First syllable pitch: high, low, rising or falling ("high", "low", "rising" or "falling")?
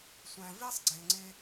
low